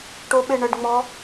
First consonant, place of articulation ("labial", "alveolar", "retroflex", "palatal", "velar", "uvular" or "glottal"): retroflex